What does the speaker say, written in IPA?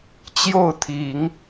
t͡ɕ j o˥˩ ʊ̯ t̪ʰ i˨˩˦ ŋ

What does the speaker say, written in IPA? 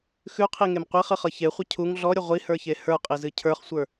x ʉ qʰ i ŋ e m qʷ i χ ɨ χ ɤ ç e χʷ ə cʰ u ŋ ɮ ɔ ɾʲ ə ʁʷ i h ə˞ ç e h ə˞ qʼ i z ɨ cʰ ə˞ χ sʷ ə˞

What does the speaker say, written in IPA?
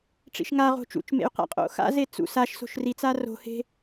ʈ͡ʂ ḭ ʃ ŋ a ʁ o̤ t͡ʃ ṵ t͡ʃ m ḛ y̯ q a̰ qʼ o̰ x a̰ z e t͡s ṵ s a ʃ s o̤ ʃ r i t͡s a r o̤ h e̤

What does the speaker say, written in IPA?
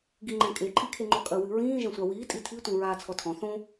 ɡ i ŋ͡ǃ ɛ̃ kʼ e ǃʼ i kʰ e ŋ͡ǃ ɔ kʼ ɐ w ɨ ɹ ĩː ʒ ɛ̃ sʷ a w iː tʼ i tʰ i tʷ ĩ ɹ aː t͡sʰ ɔ tʰ ɔ̃ θ õ

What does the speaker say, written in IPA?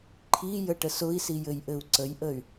ǃʰ i j ə ʈ ə s ʊ i̯ s i j ɘ j ʔ ɘ u̯ ǀ ə j ʔ ə y̯

